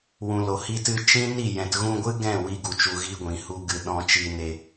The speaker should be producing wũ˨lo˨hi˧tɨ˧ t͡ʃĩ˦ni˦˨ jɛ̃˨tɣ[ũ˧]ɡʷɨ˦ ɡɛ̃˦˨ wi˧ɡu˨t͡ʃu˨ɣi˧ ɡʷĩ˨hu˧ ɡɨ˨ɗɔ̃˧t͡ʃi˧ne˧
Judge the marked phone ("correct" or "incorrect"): correct